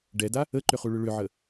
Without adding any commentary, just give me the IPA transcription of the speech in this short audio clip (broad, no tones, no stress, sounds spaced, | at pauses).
ɖ ɛ d a | ə ǃ ʏ χ u ɭ ʏ ɭ ʏ ʕ ə